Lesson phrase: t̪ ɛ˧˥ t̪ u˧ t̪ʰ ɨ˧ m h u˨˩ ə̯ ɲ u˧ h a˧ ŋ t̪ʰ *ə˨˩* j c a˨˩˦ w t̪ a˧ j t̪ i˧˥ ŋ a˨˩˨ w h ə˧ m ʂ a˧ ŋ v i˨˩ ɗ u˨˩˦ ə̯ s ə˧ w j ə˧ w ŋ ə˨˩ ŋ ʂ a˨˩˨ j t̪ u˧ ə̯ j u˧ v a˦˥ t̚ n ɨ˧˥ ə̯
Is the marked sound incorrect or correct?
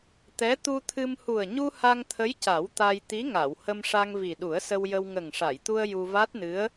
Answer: incorrect